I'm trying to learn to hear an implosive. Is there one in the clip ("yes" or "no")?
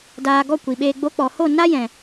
yes